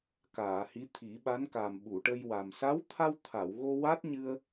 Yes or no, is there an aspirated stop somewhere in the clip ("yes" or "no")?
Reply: yes